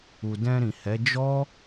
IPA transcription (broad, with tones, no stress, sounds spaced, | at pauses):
u˨ d ɛ̃˧ ɾ ĩ˨ h ɛ˨˦ d͡ʒ ɔ˦